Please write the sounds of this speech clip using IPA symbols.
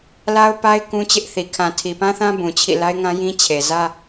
l a˦ ʊ̯ p a˦ ɪ̯ k ũ˦ t͡ɕ ɪ˦ ʔ θ i˨ kʰ ã˨ tʰ i˨ p ã˦ θ ã˦ b ũ˨ t͡ɕʰ ḭ˦˨ l a˦ ɪ̯ ŋ ã˦ j ĩ˦ t͡ɕʰ e˨ z ä˦

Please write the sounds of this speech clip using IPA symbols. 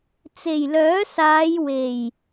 t͡s e˨˩ j l œː˨˥ s aː˨˧ j w e˨˩ j

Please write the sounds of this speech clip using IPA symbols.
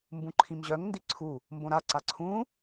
m b ũ ǃʰ ĩ m ʑ œ ŋ n d i ǀʰ u | m b õ ɾ a ǀ a ǀʰ ũ

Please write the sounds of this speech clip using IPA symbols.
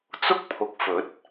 t͡s ʊ˥ k̚ pʰ ʊ˨˥ k̚ f ɵ˨˥ t̚

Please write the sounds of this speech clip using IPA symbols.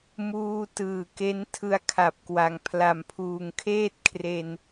m uː˧ t ɯː˨˩ k e˦˥ n tʰ ɯ˧ a̯ kʰ a˨˩ p̚ k w a˨˩ ŋ pʰ l a˨˩ m pʰ uː˨˩ ŋ kʰ eː˥˩ t̚ kʰ r e˧ n

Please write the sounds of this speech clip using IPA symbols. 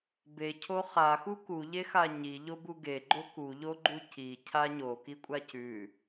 b e cʰ o χ a x u k u ʎ e x a ɲ i ʎ o b u ɡ e ɡ͡ǃ o k u ʎ o ɡ͡ǃ u c i cʰ a ɲ o k i kʷʼ a c ʉ

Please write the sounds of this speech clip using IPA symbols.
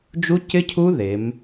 d͡ʒ u˦˥ c ɪ˦˥ cʰ u˦˥ ð e˩˧ m

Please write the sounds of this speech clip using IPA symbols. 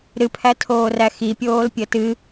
ɾ ɨ pʰ æ tʰ oː r æ x i pʲ oː l pʲ ə t ɨ

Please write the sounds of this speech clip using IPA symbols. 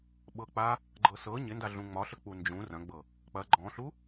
ɓ ɤ k͡p a | ɡ͡ǃ ɤ s ɤ ɲ ɪ n d a ɮ ũ ŋ͡m ɒ ɬ ə k͡p u n d͡ʒ ũ r ɐ̃ ɡ͡b ɤ | k͡p ɐ ɡ͡ǃ ɔ̃ ɬ u

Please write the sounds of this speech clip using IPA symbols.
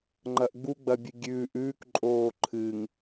ŋ͡ǃ ɐ ʔ ɡ͡b u ɡ͡b ɐ bʲ ɨ ɡʲ ʉː ʔ ʉː k ǃʼ oː ǃʰ ɨ ŋ

